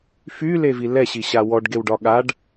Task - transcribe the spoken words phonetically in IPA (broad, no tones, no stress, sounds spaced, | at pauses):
f y l e v i l ɛ ɕ i ɕ a w ɔ ɖ ɡ e w ɖ ɒ ɠ a ɖ